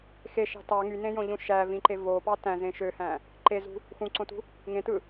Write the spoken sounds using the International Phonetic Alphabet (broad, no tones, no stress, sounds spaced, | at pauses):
x e ʃ ɑ̤ t ɑ ŋ y n ẽ j õ ʎ ũ ʃ æ v ĩ ǃ e v o p ɑ t æ̃ z ẽ ʃ ø h æ̃ | ǃ e z ṳ | x ũ ǀ õ t ṳ | ŋ ẽ t ɯ